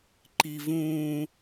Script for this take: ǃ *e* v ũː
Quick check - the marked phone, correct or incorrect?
incorrect